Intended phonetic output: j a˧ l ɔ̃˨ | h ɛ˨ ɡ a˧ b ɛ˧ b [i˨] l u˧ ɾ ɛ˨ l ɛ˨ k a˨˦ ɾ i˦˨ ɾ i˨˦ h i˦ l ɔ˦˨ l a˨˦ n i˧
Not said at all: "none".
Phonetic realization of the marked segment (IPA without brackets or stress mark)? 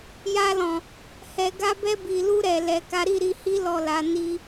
i˨